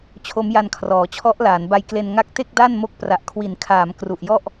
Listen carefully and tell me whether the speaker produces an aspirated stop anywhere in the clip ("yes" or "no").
yes